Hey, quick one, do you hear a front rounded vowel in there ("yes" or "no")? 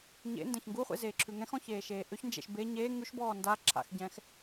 yes